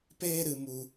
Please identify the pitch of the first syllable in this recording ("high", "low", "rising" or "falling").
high